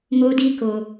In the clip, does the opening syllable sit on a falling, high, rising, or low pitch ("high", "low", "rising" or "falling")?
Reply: high